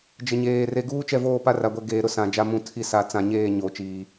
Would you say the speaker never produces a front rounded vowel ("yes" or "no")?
yes